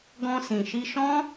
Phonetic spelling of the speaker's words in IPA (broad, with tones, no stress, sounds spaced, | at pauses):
ɡ ɔ̃˧ s ĩ˨ ʃ i˧ ʃ ɔ̃˦